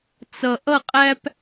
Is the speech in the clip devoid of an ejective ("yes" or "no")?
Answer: no